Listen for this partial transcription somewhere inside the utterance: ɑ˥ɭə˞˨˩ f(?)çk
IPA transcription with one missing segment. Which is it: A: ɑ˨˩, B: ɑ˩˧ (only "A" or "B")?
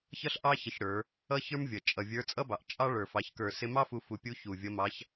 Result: B